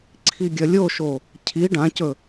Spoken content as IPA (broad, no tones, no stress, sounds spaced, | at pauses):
ǀʰ i ɡʲ ɐ lʲ o ʃ o | cʰ i ɖ ã c ɵ